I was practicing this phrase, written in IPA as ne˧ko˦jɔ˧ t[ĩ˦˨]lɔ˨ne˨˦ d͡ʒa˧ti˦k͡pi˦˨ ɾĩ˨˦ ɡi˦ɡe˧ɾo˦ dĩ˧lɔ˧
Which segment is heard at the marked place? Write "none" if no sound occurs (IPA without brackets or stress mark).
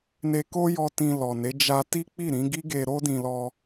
ĩ˧